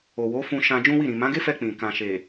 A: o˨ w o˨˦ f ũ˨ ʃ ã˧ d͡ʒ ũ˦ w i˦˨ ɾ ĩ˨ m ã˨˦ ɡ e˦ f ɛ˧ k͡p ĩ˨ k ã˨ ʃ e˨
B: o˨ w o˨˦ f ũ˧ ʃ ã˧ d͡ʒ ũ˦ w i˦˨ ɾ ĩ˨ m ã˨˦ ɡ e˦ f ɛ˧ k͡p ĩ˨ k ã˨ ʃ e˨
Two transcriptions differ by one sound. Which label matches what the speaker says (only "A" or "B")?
B